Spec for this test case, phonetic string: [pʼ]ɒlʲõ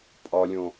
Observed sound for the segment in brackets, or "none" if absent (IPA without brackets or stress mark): pʼ